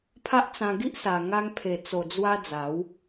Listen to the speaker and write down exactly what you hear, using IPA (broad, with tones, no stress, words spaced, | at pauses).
pʰa˦ʔ t͡sã˧ɡi˦ʔsa˨˩ ŋa˧ŋpʰe˨˩ t͡so˨˩d͡zwa˧ d͡za˨˦w